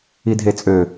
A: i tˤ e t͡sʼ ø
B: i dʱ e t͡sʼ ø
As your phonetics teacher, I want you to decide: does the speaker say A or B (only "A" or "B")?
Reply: B